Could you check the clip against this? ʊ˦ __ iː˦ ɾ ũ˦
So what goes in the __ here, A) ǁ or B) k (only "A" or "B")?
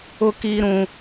B